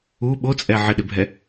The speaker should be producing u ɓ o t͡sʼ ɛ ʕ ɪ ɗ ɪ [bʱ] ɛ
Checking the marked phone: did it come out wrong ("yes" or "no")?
no